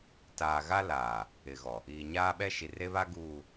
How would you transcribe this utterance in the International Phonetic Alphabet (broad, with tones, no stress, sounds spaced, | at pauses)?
t aː˨ ɣ a˦ l aː˨ | ɪ˨ ɣ ɔ˨ | iː˨ ɲ aː˦ ɓ ɛ˦ ʃ i˨ r e˦ β a˦ ɡ uː˨